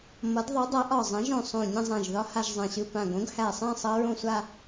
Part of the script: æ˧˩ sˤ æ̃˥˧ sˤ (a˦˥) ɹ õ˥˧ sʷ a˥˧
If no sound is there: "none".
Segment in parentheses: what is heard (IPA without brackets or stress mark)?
ʌ˦˥